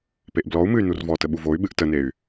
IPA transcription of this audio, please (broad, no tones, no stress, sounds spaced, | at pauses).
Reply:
p e ʔ b l ɔ u̯ m ɨ y̯ n u r v ɔ t ə ɓ u v o y̯ ɓ ɨ ʔ t ə n e y̯